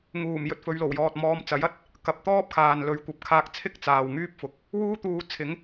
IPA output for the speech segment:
ŋuː˨˩m jɵ˧t̚fɵ˨˧ɥlo˨˩wjɔː˨t̚ mɔː˧mt͡sɐ˨˥jɐ˨˥t̚ | kɐ˨p̚ t̪ɔː˥p̚kʰaː˨nlɵ˨˥ɥkʷɐ˨˥p̚ kʰaː˧k̚t͡sʰɪ˥k̚ t͡saː˨wŋyː˥p̚fʊ˨˥k̚ | wuː˥t̪uː˧t͡sʰɪ˨˥ŋ

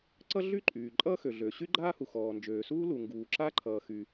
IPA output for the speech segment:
ǀʌ˥ɮy˥ǃʼyː˩ ǃʼʌː˥xø˩ ɮø˩ ɕy˥ɡ͡ǃaː˥hu˩ xɔː˩nd͡ʒøː˩suː˥ lu˩ŋɡuː˩ ǁa˥ǃʰʌː˩xy˩

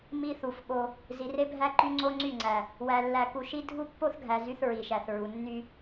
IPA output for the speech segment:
mi˦θu˨fɓo˦ | zi˨re˦bʱæ˦ǃy˦ ŋ͡ǀo˦ŋ͡ǀy˦˨ŋ͡ǀæ˨ | wæ˨lːæ˨ku˨ʃi˦ dʱu˦pːo˦θɡʱæ˨ zy˦θɹi˨ʃæ˨θɹu˨ nːy˦

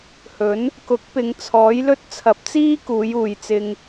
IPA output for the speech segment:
hɵ˨˥n | kʊ˨˥k̚pɪ˨˧ŋ t͡sʰɔː˨˥jlɵ˥t̚ t͡sʰɐ˨˥p̚t͡siː˥kuː˨˧j uː˧jt͡sɪ˥ŋ

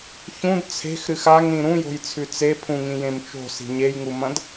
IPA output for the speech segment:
çũd t͡sʰe̤xɾɨx aŋɾĩ ɾũjo̤jt͡sʰʉ t͡sepʰũŋĩjẽm t͡ʃo̤si̤ ɲejŋumɐ̃d

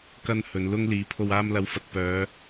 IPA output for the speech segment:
kɐ˧n hɵ˨˧nlʊ˥ŋ liː˨˥pʰo˧w aː˧mlɐ˨˥wfɐ˨t̚pœː˨˧

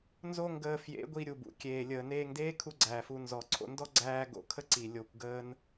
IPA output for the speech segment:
nzo˦ŋɡəː˧fjḛ˨˦ɡʷi˧ ɾʲu˨bṵ˨kʲeː˨ lʲəː˨neː˧ŋdeː˦ kʰu˦ɡ͡ǀæː˨fu˧ nzɔ˨ǀʰo̰˧ndɔ˦ ɡ͡ǀæː˧ ɡo̰˧kʰə˦ ǀi˨ lʲo˧kʷɡəː˦n

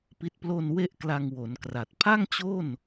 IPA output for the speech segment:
pi˦˥t̚ plo˧n we˥˩ʔkla˧ŋwo˩˦nkra˨˩t̚ pʰa˥˩ŋt͡ɕo˥˩n

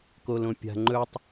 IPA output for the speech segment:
kolõpʲa̤ ŋ͡ǃɵtˤ

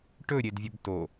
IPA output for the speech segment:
ʈɵɾʲedvʲɵb to

